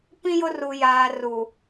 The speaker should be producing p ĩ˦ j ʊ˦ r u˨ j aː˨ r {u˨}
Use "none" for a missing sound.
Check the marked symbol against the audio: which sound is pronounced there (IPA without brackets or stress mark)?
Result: u˨